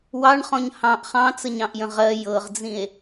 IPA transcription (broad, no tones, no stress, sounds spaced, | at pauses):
w ɑ ɳ χ ɔ̃ ɲ h ɑ̃ ʔ χ ɑ̃ t͡s ə ɲ ɑ̃ ʔ j ə̃ ʁ ɜ j ɤ ʁ d͡z ĩ e̯